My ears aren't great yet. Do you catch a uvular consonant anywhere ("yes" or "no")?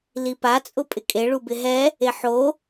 no